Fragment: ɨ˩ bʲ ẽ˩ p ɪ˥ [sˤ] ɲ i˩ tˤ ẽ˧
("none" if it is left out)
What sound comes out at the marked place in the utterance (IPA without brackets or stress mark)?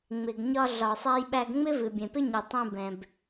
none